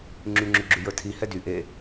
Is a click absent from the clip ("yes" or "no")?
no